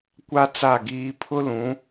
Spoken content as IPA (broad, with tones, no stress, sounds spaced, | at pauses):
kʷ a˦ t͡s a˦˨ ɡ iː˦ pʰ ʊ˦ l ũ˨˦